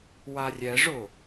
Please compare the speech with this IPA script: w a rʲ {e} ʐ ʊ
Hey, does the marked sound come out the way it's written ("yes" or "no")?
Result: no